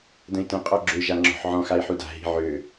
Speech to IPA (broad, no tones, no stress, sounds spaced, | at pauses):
d ə̃ i̯ t ə̃ qʼ ɔ ɡ͡ǁ ø ʒ a ŋ͡ǁ ɔ̤ ħ ʕ ɔ̃ x a i̯ ħ u d a̤ ɦ i̤ ʕ ø